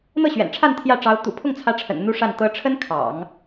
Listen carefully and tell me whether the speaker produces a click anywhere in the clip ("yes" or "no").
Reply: no